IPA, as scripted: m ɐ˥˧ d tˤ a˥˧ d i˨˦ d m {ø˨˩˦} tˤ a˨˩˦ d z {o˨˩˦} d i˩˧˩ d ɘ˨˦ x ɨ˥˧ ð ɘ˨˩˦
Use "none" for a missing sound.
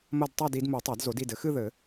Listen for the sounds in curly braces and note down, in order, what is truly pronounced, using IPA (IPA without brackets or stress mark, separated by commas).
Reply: u˨˩˦, o˨˩˦